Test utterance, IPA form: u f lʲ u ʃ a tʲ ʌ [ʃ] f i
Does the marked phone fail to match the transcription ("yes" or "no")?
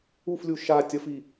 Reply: yes